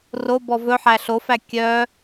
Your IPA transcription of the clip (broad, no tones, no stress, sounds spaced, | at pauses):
r o b ɔ v ɵ ħ æ ɬ o f æ kʲ œ